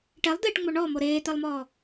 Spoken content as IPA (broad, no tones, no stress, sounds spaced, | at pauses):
ʈ ɛ lˠ d̪ eː ʈ ŋ͡m o ɳ ɔ m o ɾ eː t̪ ɛ lˠ m ɔː